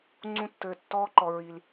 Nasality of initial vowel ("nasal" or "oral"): nasal